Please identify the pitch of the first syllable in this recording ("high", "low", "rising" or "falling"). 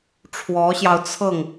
rising